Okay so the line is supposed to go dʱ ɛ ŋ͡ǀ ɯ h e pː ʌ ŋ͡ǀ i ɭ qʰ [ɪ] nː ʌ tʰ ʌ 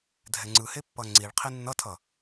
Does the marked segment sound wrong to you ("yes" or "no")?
yes